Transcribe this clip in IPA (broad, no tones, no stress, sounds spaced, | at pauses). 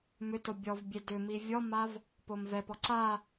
m ʏ t o bʲ ɔ v bʲ e d ʏ m i vʲ ɔ m a v | p o m v ɛ p ɔ ǀ a